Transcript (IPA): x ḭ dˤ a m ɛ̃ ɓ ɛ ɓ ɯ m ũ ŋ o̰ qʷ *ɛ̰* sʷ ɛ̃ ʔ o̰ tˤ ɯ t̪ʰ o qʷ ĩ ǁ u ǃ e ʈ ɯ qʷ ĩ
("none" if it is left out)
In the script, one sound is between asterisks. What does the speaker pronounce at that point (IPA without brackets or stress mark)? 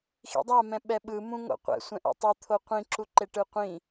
ɛ̰